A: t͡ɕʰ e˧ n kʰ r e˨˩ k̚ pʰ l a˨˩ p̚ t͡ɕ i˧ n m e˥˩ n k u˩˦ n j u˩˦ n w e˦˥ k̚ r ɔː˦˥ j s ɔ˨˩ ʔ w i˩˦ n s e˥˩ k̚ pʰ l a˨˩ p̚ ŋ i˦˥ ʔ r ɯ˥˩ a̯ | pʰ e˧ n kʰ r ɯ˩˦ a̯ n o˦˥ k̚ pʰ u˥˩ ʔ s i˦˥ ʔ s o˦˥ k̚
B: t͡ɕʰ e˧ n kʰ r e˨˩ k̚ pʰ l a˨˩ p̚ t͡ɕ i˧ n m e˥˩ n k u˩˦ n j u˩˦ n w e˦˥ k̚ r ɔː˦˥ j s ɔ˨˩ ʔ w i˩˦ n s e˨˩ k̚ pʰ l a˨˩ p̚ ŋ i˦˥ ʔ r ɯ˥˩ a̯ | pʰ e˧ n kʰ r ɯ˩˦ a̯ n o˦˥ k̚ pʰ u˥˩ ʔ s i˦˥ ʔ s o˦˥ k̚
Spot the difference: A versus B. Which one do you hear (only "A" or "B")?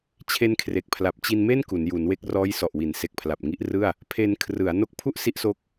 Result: B